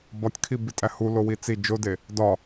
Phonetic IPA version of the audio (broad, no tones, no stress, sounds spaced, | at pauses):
b ɒ tʲ kʰ i b i tʼ æ h u l o w i t͡s i d͡ʒ o d e | d ɒ